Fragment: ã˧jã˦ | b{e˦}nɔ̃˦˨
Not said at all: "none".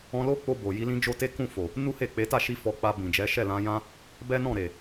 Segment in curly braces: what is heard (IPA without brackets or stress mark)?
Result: ɛ˦